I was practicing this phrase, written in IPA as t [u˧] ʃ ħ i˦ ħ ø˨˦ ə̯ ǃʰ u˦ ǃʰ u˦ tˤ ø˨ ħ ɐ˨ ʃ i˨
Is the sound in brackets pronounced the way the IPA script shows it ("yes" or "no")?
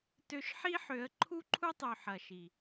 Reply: no